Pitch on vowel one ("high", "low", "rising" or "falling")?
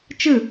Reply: falling